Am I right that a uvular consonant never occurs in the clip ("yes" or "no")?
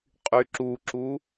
no